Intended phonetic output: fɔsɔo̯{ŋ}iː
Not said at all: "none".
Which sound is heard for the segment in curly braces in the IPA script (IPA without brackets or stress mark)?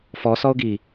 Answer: ɡ